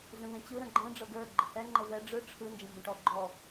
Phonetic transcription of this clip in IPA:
zə̃vẽt͡ɕɯ ɾə̃ɡ͡ǃɛ̃ ɖ͡ʐɤɡə˞ ɡ͡ǃəhɛ ŋ͡ǃəvɛ ɖ͡ʐɯ ʈ͡ʂʰɯ nd͡ʒə̃mbə̃ʈɔ ɡ͡ǃɔ

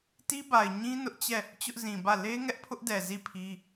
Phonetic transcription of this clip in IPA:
ti˦ba˨ɪ̯ɲĩ˦ nʊ˦ʔt͡ɕɛ˦˨ | t͡ɕʊ˦ʔzĩ˨bä˦˨ le˦ ŋɛ˦ʔpʰʊ˦ʔdɛ˨ zi˦˨pʰi˦

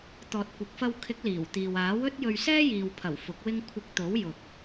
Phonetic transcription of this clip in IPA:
t̪ɔː˨t̚kʷɪ˨k̚fɐ˧wkʰɪ˨˥k̚ liː˨˩wt̪iː˨w aː˨˥wɵ˥t̚jɵ˧ɥ sɛː˥jiː˨wpʰɐ˨˩w fʊ˨˥k̚wɪ˥ŋ kʷʰɪ˧k̚t̪o˨˥w jʊ˨k̚

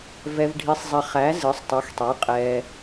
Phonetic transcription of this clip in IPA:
vɛ˩vɖʱi˩sˤzˤɛ˩ χæ˩˧ zɨ˩˧sˤtˤɛ˩˧xtˤe˩˧ qʼɛː˩

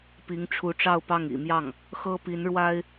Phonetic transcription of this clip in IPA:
pi˧˥ŋʈ͡ʂʰu˧˥ʈ͡ʂɑ˥˧ʊ̯pɑ˥˩ŋ ḭ˨˩mjɑ˥˩ŋ | xɤ˥pi˧˥nɻwa˥ɪ̯

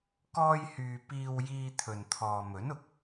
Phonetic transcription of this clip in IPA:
kɔː˥jhyː˧ piː˧wjiː˧ t̪ʰɵ˨nt̪ʰɔː˨mɵ˨˥nʊ˨k̚

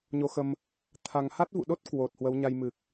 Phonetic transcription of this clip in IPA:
ɲo˧xə˧m | t̪ʰa˧ŋ ha˦˥t̚vṵ˧˨ɗo˦˥t̚ kwo˨˩t̚ hwə˨˦wɲa˧jmɨ˨˩k̚

